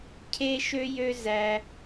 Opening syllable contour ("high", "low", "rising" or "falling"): high